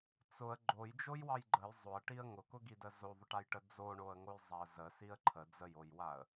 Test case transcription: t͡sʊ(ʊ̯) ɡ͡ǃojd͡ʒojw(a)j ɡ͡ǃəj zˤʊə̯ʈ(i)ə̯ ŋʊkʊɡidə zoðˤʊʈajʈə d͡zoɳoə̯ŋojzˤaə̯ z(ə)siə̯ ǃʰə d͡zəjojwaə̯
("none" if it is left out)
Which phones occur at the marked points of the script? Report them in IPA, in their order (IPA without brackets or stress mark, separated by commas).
ə̯, ɑ, i, ə